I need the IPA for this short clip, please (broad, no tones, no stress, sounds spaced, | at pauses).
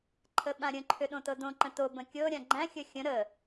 ǃʰ ə ɓ ã ɾʲ ə̃ ǃʰ ʏ ɗ õ t ɤ d õ ǃ ə̃ t o b ə̃ kʲ ɤ ɾʲ ã ɡ͡ǃ æ̃ xʲ ə xʲ ə̃ ɾ ə